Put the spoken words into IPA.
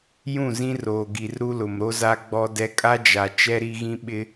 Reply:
j ũ˦˨ z ĩ˦ r oː˨ ɡ i˨ r ɾ u˦ l ʊ˨ m ɾ o˦ z a˦ ɡ͡b ɔ˦ d ɛ˦ kʼ a˦ d͡ʒ a˨ t͡ʃ ɛ˦ ɾ i˦ ɣ ĩ˦ ɓ ɪ˦

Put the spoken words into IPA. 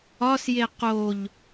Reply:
ɒ s j e q o ʎ

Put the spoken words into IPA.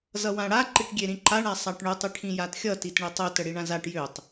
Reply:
z ʌ w ã ɽ a ǃ i ʈ ɡʲ e ɾ ĩ ǃ a ɳ a sˤ a ʈ ɳ ø tˤ i ʈʰ ĩ j a t xʲ ʌ t i t ɳ e tˤ ø t ə ɽ i ɳ ã z a ʈ j ø tˤ

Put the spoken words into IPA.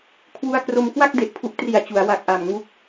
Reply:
kʰ w u˧ a̯ k r o˧ m k w a˥˩ k̚ d e˨˩ ʔ pʰ u˦˥ ʔ t r i˨˩ a̯ t͡ɕ u˩˦ a̯ w a˨˩ k̚ ʔ a˨˩ m ŋ u˦˥ k̚

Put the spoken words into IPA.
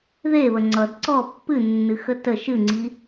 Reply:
ð e β ə ŋ͡ǀ ʌ d ǀ ɔ pː ɨ nː ɨ x ə t ə ʃ ɨ ŋ͡ǀ i

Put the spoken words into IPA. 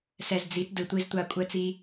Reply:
s ɛ˨ z d͡z i˨˦ t d ɯ˨ tʷ i˦ z tʷ a˦ kʷʼ ɛ˦ t͡s i˦

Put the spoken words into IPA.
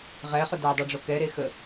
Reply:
ʁ ɛ χ ʊ d a dˤ o ɖ͡ʐ o k ɛ ɾ e x ə

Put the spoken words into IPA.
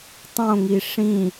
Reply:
tˤ õ ŋ i ʂ ĩ

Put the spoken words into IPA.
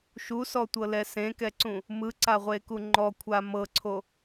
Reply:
ʃ u s ɔ tʷ ɤ l ɛ s ẽ k ɛ ǀ ũ | m ɯ ǀ a ʁʷ e k u ŋ͡ǃ ɔ kʷʰ a m ɤ ǀʰ o

